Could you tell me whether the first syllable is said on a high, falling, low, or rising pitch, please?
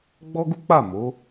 high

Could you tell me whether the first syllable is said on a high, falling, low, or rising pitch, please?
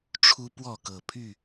high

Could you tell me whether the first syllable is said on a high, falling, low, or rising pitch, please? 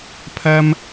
high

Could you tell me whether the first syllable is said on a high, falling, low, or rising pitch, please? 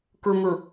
low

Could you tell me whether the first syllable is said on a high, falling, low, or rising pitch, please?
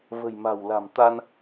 low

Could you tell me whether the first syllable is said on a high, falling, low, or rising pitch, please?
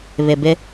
low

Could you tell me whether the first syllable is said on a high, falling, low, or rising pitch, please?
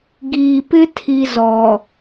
low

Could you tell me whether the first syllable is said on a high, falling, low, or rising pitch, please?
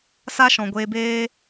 high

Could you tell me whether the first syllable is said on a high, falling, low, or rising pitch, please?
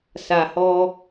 low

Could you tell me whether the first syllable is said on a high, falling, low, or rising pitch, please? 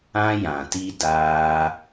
high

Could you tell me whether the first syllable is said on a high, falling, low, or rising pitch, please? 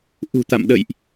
low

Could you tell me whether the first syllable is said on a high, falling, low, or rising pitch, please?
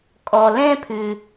low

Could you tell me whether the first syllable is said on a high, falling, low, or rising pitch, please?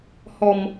low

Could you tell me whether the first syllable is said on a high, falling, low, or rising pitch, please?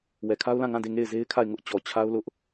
low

